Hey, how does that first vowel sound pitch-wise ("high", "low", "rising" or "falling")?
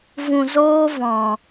low